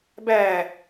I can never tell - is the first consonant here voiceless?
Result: no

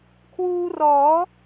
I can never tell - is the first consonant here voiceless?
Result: yes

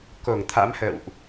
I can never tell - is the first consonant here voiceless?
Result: yes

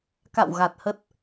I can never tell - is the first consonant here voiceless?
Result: yes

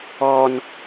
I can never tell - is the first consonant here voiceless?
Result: no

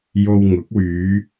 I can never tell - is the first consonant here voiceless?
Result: no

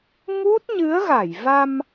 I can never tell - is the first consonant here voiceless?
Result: no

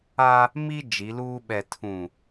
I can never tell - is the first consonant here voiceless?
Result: no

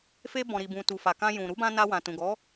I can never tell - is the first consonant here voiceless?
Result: yes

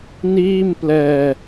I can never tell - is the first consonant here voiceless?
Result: no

